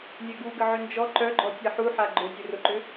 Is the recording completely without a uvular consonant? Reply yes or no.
yes